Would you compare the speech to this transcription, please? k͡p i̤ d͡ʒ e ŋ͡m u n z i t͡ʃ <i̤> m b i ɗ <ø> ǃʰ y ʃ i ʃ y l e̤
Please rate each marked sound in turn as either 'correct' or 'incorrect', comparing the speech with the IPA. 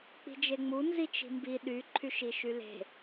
correct, incorrect

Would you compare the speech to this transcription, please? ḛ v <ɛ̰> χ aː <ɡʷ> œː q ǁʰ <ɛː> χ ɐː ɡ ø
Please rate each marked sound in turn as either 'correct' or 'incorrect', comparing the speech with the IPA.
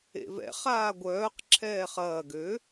correct, correct, correct

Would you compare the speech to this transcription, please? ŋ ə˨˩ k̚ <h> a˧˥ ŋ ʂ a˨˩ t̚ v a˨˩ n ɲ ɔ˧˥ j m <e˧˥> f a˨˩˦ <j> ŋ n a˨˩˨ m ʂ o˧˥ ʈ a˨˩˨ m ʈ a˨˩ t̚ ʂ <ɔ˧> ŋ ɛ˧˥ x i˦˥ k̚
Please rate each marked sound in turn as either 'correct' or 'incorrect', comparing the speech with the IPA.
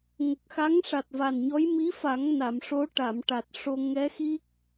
incorrect, incorrect, incorrect, incorrect

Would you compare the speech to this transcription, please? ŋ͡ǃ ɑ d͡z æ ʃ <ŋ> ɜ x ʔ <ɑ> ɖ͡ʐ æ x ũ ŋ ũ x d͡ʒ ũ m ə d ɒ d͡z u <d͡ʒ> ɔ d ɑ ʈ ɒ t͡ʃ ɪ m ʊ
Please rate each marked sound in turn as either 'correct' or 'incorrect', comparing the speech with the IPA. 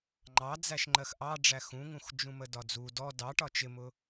incorrect, correct, incorrect

